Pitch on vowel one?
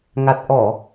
low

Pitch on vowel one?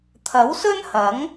rising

